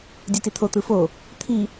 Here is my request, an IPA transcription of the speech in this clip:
dʲ u t i t̪ʰ o t̪ ɯ f o | t̪ʰ i

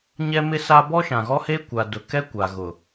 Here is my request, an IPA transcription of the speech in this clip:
ɲ ɛ˦ m ɪ˦ s a˦ b ɔ˦ ʃ ã˨ ɣ ɔ˦ h e˦ kʷ a˨ d ʊ˨ k ɛ˦ kʷ a˨ ɣ ʊ˨

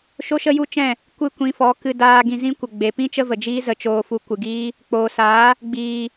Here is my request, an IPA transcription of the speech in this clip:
ʃ o˦ ʃ ə˦ j u˦ t͡ʃ ɛ̃˦˨ | kʷ ɨ˦˨ kʷ ĩ˧ f ɔ˨˦ k ɨ˧ d aː˧ ɡ ĩ˧ z ĩ˦ kʷ ə˨ ɡ͡b e˨ p ĩ˦ t͡ʃ ə˦ v ə˨ d͡ʒ iː˦ z ə˧ t͡ʃ oː˧ f u˧ kʷ ɨ˨ ɡ iː˦ | k͡p oː˨ s aː˨˦ | ɡ͡b iː˨

